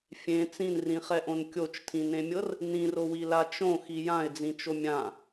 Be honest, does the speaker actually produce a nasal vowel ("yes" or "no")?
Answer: yes